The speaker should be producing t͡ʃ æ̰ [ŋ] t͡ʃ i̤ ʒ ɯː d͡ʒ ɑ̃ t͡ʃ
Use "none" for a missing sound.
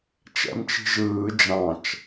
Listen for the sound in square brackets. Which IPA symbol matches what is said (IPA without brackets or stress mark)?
m